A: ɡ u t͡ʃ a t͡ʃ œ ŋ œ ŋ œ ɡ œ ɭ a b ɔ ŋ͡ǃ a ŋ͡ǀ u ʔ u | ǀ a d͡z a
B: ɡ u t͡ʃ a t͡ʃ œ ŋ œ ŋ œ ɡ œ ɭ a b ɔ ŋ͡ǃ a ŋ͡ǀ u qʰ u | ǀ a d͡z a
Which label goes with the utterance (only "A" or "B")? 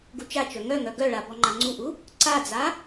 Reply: A